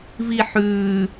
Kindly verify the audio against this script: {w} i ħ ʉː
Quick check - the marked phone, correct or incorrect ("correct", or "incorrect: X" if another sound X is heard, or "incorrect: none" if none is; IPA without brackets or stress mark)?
incorrect: v